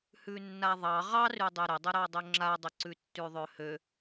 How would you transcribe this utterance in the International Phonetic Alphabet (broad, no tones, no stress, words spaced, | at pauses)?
hʉnːaðˤɑ ʁɑrʉdˤe ɾədˤəɾɑdˤɵ ŋ͡ǁadˤəǀʉ tːʉðˤøhø